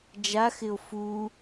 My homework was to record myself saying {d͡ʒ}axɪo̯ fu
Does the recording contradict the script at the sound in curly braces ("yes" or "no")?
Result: no